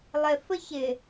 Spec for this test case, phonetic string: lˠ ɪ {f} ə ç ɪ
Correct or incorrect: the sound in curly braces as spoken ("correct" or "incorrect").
correct